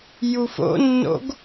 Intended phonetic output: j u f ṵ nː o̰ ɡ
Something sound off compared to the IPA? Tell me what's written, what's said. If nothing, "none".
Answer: ṵ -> o̰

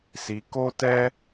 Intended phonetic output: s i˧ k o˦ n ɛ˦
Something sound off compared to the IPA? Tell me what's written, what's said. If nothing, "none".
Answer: n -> t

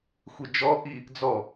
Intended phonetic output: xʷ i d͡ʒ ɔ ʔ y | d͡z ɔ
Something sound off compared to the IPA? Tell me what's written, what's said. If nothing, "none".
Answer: y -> i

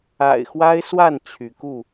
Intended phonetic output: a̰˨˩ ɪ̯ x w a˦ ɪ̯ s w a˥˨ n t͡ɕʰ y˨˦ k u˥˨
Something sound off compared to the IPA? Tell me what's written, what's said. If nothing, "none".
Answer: none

